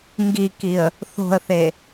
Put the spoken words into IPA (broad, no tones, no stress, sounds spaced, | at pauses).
ŋ ɡ i k i ə̯ | θ o̤ ə̯ θ e